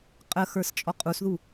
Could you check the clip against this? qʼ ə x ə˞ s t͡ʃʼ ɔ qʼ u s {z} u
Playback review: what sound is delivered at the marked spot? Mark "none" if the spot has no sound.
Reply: ð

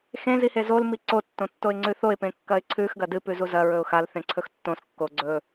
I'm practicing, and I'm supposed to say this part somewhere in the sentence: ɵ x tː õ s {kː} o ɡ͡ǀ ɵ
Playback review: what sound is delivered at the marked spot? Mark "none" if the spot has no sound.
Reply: kː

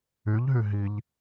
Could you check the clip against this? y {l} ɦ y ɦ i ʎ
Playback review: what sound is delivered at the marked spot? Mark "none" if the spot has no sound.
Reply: ʎ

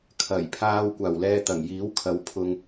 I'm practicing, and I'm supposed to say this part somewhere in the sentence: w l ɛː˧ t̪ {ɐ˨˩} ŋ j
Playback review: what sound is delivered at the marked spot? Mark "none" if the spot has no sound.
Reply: ɐ˨˩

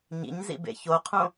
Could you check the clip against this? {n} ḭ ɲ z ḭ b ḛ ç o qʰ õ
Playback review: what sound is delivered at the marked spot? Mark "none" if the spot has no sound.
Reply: ɲ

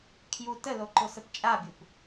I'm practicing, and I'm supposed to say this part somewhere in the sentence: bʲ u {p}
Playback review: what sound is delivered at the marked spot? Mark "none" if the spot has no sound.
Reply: p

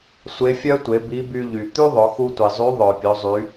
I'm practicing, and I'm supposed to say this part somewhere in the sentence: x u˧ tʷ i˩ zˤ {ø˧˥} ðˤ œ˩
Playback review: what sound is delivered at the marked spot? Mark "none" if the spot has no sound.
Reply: y˧˥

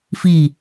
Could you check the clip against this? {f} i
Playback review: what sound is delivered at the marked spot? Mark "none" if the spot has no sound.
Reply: f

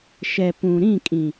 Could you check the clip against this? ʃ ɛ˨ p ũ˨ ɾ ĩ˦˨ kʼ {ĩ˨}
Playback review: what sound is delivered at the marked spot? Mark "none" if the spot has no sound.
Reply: ĩ˨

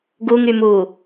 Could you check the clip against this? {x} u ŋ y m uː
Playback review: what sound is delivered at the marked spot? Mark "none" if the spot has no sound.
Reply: ɡ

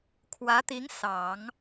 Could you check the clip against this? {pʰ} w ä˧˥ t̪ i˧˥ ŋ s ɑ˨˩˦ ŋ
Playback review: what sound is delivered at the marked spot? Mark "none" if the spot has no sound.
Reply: kʰ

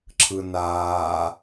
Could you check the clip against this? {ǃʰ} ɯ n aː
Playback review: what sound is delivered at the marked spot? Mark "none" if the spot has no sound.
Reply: ǁʰ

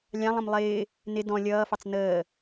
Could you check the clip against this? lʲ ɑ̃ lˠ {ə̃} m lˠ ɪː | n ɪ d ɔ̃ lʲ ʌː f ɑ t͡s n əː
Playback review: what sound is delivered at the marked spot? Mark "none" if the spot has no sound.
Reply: ə̃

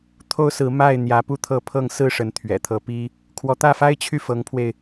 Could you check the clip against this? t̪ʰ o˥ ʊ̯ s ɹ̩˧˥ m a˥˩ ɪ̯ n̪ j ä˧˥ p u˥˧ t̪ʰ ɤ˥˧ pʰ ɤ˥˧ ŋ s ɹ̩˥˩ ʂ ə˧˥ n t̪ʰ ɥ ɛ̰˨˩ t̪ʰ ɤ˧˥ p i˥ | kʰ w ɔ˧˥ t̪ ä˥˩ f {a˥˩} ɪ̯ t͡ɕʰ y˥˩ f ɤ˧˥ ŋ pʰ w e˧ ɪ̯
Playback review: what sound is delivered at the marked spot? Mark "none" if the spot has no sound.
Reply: a˥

